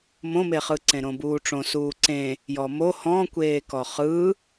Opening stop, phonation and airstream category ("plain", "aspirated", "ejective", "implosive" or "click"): click